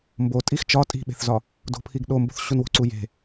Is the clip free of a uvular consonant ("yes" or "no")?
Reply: yes